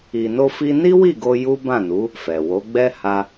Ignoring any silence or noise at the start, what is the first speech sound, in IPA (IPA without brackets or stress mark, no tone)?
i